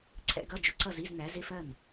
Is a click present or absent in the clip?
present